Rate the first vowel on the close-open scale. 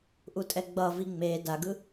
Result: close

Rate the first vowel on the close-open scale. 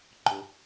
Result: close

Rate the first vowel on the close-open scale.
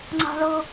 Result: open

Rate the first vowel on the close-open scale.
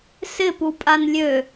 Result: close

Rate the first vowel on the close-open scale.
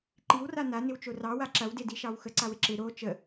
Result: close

